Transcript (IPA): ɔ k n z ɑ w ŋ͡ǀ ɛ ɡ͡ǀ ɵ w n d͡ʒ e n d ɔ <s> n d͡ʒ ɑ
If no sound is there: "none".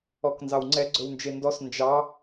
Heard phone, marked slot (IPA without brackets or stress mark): s